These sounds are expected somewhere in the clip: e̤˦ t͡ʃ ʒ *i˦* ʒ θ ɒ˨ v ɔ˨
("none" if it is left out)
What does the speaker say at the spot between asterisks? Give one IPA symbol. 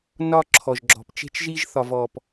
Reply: i˦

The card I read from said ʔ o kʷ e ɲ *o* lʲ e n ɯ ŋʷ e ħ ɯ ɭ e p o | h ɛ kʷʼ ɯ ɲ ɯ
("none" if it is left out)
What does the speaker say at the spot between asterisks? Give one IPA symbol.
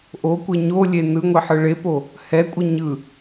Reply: o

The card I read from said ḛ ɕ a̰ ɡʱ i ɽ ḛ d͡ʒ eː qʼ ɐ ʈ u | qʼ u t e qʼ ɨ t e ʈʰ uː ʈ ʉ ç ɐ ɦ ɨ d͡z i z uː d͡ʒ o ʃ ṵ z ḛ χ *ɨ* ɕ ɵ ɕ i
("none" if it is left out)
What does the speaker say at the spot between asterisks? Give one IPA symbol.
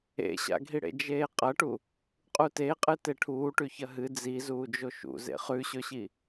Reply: ʉ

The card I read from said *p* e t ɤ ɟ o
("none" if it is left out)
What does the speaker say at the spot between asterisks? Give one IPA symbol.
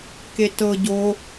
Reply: k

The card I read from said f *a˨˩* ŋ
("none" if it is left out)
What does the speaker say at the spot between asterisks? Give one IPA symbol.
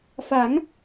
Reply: a˩˦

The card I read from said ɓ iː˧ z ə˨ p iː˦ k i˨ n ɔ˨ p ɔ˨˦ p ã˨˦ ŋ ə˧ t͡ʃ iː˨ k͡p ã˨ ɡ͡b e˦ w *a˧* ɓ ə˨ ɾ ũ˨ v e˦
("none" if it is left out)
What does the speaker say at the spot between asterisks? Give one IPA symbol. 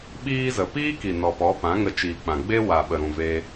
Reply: a˨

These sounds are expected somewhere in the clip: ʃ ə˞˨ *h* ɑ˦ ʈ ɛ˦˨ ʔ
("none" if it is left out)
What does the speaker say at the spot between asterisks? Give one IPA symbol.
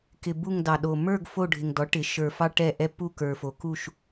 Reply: f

